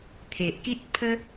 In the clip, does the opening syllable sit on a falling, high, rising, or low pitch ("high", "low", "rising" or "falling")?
low